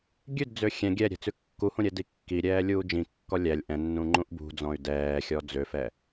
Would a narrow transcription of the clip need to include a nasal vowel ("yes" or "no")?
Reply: yes